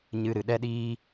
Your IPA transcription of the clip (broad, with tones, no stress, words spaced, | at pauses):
ɲɨ˧ɾɨ˨ɗɛ˦ɗiː˦